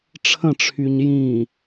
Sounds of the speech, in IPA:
ʈ͡ʂʰ ə̃ ʈ͡ʂʰ y ɲ j ĩ

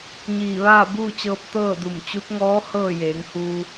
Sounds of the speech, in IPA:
ɲ iː˧˩ ʋ aː˥˨ b uː˥˨ t͡ɕ ɤː˧ p̚ t̪ ɤː˥˨ d u˧˩ m t͡ɕ u˧˥ t̚ ŋ ɔː˧˥ h ɤː˥˨ j eː˩˧ ŋ h uː˧

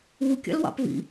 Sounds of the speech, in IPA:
u kʲ ɑ̰ l w ɑ̰ p v ḭ

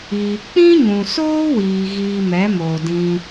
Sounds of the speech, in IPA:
iː˨ k͡p ĩ˦ ɲ ũ˨ s oː˦ w iː˨ ɣ iː˧ m ɛ˨˦ m oː˨ d ĩ˧

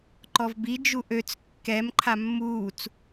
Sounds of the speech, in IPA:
ǃ ɔ v b i d͡ʒ u ʔ ø t͡s kː ɛ m ǃʰ a mː uː t͡s

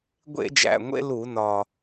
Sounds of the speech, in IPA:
ɡʷ ḛ˧˩˧ d͡ʒ æ̰˨˩ ŋʷ ḛ˧ l u˧˩˧ n ɒ˨˩

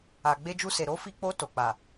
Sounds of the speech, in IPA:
a˨ ɡ͡b e˧ d͡ʒ u˧ s e˨ ɾ o˨˦ f i˧ k͡p o˧ t o˨ k͡p a˨

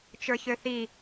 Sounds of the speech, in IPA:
t͡ʃ ə˞ ç ø θ i

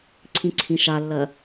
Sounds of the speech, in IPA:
ǀʰ ĩ ǀʰ ĩ ʃ a lː ɜ

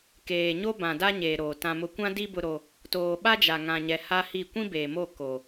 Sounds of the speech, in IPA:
k eː˨ ɲ o˦ b ã˨ d a˦ ɲ eː˨ ɾ oː˨ t ã˨ m ʊ˨ kʷ ã˦ d i˦ b ʊ˦ ɾ o˦ | t oː˨ ɓ a˦ d͡ʒ a˨ ŋ ã˨ ɲ ɛ˨ h a˦ h i˦˨ kʷ ĩ˦ b eː˨ m o˦˨ k o˨

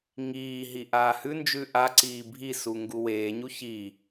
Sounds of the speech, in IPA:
ŋ iː ɦ i ʔ aː h ʉ n d͡ʒ ʉ ʔ a ǀ iː bʱ i s u ŋ ɡ u w eː ɲ u ç i

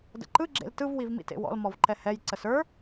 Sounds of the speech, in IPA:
d ə̰ ǃ ɯ ɡ͡ǁ ḛ l t ɯ v w i v m ḭ t ḛ w ɔ̰ l m ɔ v ǃ ɛ h ɛ j ǀ ə s ə˞

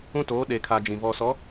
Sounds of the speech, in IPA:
ũ˦ t oː˨˦ ɗ e˨ kʰ a˨ d͡ʒ ĩ˨ v ɔ˨ s ɔ˨˦

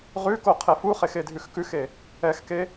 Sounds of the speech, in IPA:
ʁ ʉ k o qʰ e f u χ e x e dʱ ʉ x k ʉ x e | ɛ x k e

